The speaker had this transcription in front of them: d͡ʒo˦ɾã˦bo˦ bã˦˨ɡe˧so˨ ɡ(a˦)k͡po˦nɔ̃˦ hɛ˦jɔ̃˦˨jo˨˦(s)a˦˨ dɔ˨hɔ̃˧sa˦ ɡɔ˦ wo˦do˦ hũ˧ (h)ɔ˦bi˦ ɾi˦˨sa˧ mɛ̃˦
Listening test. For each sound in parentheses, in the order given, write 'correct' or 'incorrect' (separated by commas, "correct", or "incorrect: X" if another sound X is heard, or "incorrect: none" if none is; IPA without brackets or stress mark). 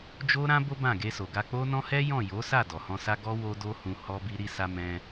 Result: incorrect: a˧, correct, correct